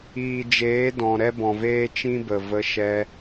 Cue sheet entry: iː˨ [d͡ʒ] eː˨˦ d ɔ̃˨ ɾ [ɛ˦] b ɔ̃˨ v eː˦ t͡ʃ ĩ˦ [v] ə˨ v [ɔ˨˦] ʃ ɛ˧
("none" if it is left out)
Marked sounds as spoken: d͡ʒ, ɛ˦, b, ə˨˦

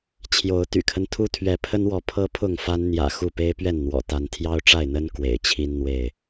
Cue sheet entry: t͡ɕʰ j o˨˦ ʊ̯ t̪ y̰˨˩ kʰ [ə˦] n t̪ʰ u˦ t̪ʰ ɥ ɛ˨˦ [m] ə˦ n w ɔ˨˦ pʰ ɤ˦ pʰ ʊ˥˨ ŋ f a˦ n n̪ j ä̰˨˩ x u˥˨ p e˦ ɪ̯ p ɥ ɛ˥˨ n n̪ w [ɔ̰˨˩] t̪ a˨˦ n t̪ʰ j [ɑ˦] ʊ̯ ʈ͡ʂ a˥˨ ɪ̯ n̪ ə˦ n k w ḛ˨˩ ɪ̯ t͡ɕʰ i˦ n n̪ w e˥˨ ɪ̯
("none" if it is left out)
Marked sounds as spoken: ə˦, pʰ, ɔ̰˨˩, ɑ˦

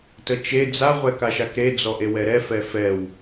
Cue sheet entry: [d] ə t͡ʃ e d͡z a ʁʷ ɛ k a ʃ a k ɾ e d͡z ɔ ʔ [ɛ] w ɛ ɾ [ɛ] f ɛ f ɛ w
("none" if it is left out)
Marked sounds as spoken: t, e, ɛ

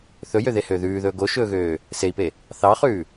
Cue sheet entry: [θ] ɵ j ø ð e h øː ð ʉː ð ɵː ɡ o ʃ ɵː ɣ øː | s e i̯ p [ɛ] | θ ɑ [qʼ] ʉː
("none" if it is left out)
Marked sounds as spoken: θ, e, χ

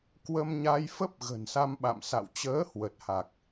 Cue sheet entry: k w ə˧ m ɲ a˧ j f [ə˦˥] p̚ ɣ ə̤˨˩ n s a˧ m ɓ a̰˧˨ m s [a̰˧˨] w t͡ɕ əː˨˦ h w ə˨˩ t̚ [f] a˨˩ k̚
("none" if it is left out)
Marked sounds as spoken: ə˦˥, a̰˧˨, h

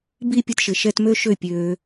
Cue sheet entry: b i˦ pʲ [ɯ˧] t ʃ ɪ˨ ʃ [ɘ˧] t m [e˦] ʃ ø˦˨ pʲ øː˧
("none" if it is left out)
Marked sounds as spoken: ɯ˧, ɛ˧, ø˦

